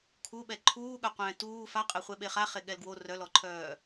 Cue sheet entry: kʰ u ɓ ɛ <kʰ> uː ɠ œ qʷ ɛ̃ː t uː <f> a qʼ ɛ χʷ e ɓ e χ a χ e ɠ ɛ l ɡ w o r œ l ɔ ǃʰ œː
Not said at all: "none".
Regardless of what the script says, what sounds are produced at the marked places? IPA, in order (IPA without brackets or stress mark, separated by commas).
ǃʰ, f